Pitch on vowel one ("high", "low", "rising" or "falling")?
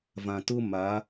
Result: low